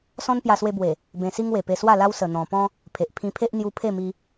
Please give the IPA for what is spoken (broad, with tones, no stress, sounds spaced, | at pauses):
s ɔ̃˦ n p j a˧ s w e˧ b w e˨˩ | b ẽ˧ s i˦ ŋ w e˨˩ p e˧ s w a˥˧ l a˦ w s ə˨˩ n̪ ɔ̃˨˩ p ɔ̃˦ | pʰ e˨ ʔ pʰ ĩ˧ pʰ e˦ ʔ n̪ j u˧ pʰ e˥˧ m i˧